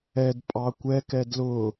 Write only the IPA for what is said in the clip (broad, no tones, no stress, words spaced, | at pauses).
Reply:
ɛd pʼɑkʷɛkɛ dlʊ